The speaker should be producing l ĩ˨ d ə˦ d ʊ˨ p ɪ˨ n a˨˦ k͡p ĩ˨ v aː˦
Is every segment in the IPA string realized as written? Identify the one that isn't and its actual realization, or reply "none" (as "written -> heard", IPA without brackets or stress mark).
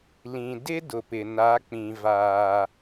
ə˦ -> ɪ˦